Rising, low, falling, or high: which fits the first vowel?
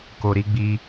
low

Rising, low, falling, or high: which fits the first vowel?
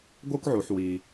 high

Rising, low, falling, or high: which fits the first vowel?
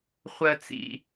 low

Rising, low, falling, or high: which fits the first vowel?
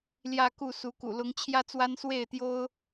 falling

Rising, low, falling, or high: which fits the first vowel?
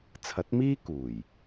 rising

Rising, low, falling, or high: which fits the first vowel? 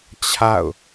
falling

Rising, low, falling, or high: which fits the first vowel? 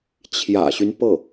low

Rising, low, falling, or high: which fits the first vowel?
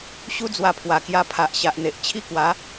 high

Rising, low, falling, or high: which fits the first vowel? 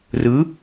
rising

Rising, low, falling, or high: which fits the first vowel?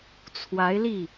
rising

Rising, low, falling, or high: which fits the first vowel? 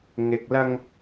low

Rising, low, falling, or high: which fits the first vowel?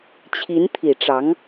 rising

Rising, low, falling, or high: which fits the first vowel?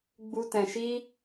high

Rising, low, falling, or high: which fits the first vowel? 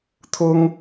high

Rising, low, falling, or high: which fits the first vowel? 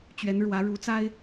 rising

